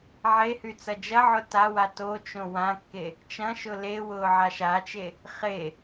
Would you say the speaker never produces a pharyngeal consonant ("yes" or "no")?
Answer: no